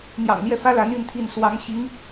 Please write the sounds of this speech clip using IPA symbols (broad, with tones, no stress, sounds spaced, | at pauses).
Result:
n̪ j ɑ̰˨˩ ŋ l j ɛ˥˩ f ä˥ l a˧˥ n y˥˧ n t̪ʰ i˥˩ n s w ɑ˧˥ ŋ ɕ i˧˥ ŋ